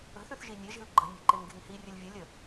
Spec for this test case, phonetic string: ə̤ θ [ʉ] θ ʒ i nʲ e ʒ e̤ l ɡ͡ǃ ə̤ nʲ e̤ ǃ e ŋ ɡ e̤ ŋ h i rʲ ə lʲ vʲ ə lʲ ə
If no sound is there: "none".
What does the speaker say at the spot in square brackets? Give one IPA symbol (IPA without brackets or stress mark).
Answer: ʉ